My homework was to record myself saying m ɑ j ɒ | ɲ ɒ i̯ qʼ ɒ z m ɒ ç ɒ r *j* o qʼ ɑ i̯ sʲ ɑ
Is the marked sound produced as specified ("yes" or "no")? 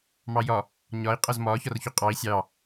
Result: no